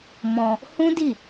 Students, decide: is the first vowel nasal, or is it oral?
nasal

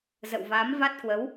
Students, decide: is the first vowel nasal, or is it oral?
oral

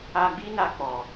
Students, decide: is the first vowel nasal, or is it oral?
oral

